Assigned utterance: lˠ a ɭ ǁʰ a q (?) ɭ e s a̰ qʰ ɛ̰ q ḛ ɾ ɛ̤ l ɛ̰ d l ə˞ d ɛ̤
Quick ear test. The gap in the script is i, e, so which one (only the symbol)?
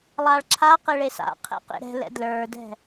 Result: e